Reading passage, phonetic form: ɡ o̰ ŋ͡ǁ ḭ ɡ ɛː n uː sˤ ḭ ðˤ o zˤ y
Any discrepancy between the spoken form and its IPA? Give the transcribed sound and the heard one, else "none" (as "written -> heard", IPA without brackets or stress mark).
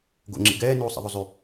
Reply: none